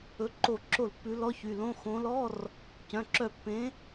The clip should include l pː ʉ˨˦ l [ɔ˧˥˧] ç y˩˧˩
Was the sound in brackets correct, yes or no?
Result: yes